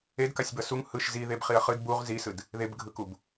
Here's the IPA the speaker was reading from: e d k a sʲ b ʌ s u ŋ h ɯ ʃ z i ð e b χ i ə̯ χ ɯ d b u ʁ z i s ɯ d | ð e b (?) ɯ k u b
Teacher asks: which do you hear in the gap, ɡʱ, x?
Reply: ɡʱ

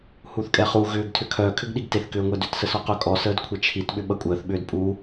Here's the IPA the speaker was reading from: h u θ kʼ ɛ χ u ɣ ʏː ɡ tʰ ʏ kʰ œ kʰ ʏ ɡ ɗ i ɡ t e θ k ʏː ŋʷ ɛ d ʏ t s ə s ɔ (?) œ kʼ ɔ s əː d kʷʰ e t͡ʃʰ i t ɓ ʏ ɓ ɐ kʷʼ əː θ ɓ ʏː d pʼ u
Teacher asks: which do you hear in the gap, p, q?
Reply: q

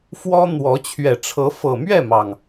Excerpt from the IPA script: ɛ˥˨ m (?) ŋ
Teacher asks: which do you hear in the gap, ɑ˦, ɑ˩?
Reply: ɑ˩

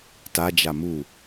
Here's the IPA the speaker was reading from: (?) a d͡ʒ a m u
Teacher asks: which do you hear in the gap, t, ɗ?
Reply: t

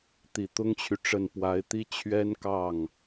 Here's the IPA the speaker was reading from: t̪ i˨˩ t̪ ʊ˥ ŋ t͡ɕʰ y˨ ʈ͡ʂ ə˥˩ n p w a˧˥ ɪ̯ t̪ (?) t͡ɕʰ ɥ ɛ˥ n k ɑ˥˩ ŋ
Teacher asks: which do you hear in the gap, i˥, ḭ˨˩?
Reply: i˥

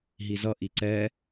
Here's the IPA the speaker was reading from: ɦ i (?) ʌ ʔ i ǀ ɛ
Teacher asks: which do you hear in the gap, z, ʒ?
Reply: z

